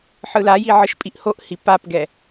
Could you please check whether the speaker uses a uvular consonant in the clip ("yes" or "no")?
no